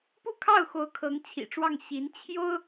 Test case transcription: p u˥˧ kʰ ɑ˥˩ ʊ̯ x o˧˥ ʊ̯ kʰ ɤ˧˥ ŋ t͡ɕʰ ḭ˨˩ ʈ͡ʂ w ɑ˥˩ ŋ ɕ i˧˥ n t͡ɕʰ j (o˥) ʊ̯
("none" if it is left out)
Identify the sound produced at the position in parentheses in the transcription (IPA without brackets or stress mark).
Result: o˥